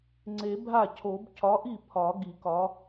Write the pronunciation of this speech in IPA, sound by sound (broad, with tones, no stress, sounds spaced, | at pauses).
ŋ͡ǀ e˨˩˦ bʱ a˥˩ cʰ o˨˩˦ b cʰ ɒ˨˥ ʔ i˥˩ pʰ ɒ˨˩˦ ɡ i˨˩˦ k ɒ˨˥